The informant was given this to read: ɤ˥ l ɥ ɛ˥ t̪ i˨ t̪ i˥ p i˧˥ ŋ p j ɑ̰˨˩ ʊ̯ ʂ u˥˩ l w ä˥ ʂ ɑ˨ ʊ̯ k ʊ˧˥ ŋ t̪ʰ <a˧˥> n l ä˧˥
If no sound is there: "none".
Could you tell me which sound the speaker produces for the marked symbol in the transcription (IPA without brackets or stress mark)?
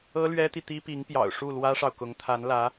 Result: a˧˥